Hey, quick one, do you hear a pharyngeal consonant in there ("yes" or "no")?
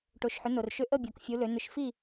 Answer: yes